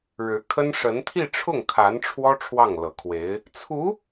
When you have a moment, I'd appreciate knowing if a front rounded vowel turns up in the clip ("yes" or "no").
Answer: no